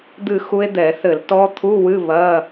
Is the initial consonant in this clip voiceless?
no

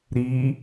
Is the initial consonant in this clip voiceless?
no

